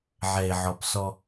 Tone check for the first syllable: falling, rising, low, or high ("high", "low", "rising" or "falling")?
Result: low